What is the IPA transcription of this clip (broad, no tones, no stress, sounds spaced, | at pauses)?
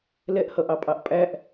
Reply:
l ɛ ʔ h ʌ ʔ ɑ pʼ ɑ ʔ pʼ æ ʔ